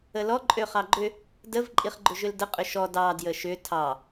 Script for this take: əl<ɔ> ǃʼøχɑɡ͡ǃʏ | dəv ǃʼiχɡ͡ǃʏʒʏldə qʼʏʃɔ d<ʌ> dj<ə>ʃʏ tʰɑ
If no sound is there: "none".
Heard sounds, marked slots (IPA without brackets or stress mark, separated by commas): ɔ, ɑ, ə